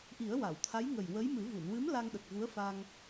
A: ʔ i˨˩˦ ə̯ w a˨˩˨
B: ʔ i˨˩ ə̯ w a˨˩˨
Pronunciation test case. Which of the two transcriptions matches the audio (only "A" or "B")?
A